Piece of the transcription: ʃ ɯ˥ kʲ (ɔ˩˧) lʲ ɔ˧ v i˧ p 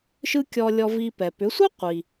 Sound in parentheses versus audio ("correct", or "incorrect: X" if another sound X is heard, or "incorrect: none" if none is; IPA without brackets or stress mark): incorrect: ɔ˧